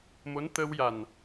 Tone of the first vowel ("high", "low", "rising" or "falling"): rising